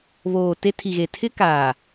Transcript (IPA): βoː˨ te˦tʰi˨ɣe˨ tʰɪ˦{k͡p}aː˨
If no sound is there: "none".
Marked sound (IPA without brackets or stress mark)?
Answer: k